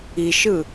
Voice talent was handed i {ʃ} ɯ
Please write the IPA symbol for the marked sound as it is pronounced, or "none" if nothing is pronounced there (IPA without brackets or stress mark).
ʃ